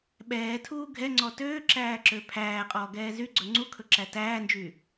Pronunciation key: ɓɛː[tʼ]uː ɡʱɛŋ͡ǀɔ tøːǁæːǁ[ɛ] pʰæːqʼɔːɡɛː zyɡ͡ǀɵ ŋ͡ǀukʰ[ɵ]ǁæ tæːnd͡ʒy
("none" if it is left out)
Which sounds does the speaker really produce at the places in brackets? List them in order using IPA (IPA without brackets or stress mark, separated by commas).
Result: tʰ, ø, ɵ